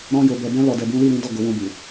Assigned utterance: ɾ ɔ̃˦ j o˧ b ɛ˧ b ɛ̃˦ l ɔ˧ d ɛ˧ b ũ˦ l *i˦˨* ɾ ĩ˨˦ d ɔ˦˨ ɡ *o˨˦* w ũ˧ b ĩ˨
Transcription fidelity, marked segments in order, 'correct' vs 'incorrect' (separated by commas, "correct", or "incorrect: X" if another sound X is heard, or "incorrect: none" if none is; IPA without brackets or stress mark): correct, correct